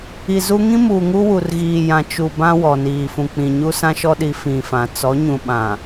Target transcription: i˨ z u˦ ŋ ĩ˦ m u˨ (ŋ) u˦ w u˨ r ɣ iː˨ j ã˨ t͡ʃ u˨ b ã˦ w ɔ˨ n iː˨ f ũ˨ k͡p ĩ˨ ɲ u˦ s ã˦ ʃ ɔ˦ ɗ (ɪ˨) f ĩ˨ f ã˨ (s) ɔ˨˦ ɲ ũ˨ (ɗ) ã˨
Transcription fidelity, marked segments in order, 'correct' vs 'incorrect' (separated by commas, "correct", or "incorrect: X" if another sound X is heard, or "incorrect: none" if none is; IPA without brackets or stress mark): correct, incorrect: i˨, incorrect: t͡s, incorrect: ɓ